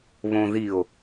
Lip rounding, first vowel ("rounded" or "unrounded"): rounded